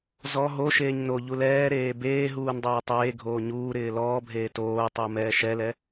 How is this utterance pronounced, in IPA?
z ɔ ɦ o ʃ eː ɲ n o ʎ u l ɛː ɾ eː b eː ɦ uː n dˤ eː tˤ eː ɡʱ oː ɲ uː ɾ ɪː l ɔː bʱ eː t oː tˤ u m ɛː ʃ ɛ l ɛ

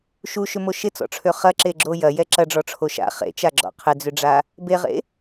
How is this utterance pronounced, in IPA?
ʃ u ʃ ʏ m o ʃ ɪ t͡s ɔ̰ ʈ͡ʂʰ ø χ ɐ ǁ e ɡ͡ǁ o j ɐ j ɛ ǁ ɐ ɖ͡ʐ ɔ ʈ͡ʂʰ o ʃ a̰ χ ḛ t͡ʃ a ɡ͡ǁ ɔ̰ qʰ ɪ d͡z ʏ ɖ͡ʐ a | b e ʁ ḛ

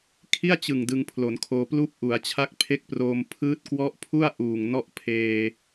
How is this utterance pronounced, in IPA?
kʰ i˥˩ a̯ t͡ɕ ɯ˨˩ ŋ d ɯ˧ ŋ pʰ l o˩˦ n kʰ oː˧ p l uː˥˩ p̚ ʔ u˩˦ a̯ t͡ɕʰ a˦˥ k̚ pʰ e˦˥ k̚ p r oː˧ m pʰ ɯː˦˥ t̚ k w ɔ˦˥ ʔ pʰ u˥˩ a̯ ʔ uː˨˩ ŋ n ɔ˥˩ ʔ pʰ eː˧

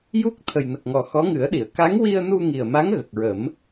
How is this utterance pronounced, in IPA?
j u˦˥ k̚ t̪ʰ ə˨˩ j n ə˨˩ k̚ ŋ ɔ˨˩ x ɔ˧˥ ŋ ɨ˨˩˦ ə̯ ɗ i˨˩˨ ə̯ k a˧˥ ŋ w i˧ ə̯ n u˧ ŋ i˨˩ ə̯ m a˧˥ ŋ ɣ ə˨˩ k̚ ɹ ə˨˩˦ m

